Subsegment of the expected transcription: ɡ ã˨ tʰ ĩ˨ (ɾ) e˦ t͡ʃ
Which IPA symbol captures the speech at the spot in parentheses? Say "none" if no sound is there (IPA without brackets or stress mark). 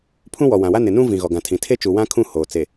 tʰ